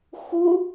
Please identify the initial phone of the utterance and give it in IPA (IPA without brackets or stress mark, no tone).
x